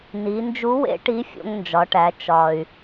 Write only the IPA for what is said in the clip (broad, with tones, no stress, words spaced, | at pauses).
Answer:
ni˩˧nd͡ʒu˧˥ wḛ˧˥ʈi˧˥ fʲo̰˧ŋnd͡ʒɒ˩˧ʈæ˩˧ t͡ʃɒ˩y̯